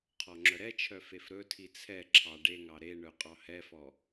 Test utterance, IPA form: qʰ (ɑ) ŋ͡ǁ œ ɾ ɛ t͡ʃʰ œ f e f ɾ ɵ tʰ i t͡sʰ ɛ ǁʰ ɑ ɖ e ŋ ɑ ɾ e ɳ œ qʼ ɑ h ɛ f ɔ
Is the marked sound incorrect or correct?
incorrect